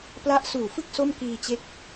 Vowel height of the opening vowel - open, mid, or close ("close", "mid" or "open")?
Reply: open